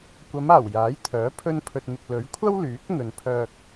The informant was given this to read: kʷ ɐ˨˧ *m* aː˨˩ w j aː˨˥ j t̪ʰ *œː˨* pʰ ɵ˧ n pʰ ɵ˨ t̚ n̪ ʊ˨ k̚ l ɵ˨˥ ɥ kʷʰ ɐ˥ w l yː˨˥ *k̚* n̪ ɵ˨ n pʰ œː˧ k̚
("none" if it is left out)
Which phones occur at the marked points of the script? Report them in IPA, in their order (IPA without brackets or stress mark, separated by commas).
m, œː˨˥, k̚